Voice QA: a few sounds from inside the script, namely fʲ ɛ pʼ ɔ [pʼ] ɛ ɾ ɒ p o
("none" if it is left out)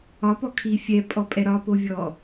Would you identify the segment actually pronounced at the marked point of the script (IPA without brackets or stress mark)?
pʼ